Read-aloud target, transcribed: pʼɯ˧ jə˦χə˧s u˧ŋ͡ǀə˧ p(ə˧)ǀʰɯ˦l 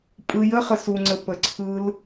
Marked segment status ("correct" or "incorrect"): correct